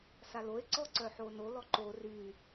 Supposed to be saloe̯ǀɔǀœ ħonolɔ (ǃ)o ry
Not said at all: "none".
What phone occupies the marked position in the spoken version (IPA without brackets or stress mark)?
ǃ